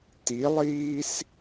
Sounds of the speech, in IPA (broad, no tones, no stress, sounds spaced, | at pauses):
t i lˠ iː s